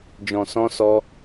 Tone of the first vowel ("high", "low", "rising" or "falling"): low